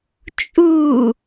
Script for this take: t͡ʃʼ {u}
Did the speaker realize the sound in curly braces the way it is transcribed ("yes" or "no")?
yes